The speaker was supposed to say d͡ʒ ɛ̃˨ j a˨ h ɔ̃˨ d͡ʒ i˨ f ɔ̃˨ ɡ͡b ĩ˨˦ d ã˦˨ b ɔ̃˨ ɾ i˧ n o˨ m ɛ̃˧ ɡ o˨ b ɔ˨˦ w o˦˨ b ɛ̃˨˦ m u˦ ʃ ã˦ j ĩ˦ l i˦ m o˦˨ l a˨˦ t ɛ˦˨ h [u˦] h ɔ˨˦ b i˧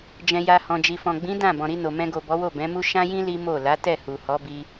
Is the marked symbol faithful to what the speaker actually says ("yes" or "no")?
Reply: no